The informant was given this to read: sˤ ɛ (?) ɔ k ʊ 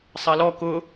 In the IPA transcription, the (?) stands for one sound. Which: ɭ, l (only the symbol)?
l